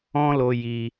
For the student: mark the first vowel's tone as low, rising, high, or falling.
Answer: high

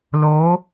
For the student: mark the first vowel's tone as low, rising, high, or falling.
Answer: rising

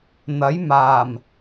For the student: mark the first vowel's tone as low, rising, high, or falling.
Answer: rising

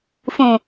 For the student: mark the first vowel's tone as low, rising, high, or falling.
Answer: low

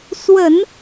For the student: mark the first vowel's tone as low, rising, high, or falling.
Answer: low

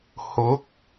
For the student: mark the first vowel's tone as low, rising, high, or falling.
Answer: rising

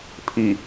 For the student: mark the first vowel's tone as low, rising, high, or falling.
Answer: low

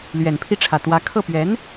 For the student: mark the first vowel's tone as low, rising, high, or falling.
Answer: low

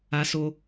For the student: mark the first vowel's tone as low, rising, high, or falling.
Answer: high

